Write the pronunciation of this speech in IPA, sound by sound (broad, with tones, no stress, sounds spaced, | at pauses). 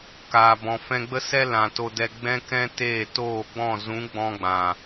k aː˨ b ɔ̃˨ f ɛ̃˧ ɡ͡b ə˦ s ɛ˦ l ã˨ t o˧ d ɛ˧ ɡ͡b ɛ̃˦ k ɛ̃˦ t eː˦˨ t oː˦˨ ɡ͡b ɔ̃˦˨ z ũ˨˦ ɡ͡b ɔ̃˧ ɡ͡b ã˨